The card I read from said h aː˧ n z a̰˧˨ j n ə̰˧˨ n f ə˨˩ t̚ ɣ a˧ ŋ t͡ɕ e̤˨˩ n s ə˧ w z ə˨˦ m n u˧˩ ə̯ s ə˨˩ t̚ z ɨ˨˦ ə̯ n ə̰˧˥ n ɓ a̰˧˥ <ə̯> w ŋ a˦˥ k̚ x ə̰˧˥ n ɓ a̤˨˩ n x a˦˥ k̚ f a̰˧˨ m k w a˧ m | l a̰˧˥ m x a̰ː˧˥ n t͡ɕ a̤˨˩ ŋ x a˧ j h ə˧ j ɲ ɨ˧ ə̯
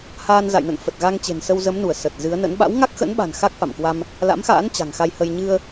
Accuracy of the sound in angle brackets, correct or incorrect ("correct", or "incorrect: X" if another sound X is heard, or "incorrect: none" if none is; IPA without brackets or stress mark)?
incorrect: none